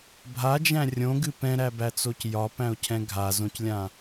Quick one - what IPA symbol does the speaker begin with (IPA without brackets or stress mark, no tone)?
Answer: bʱ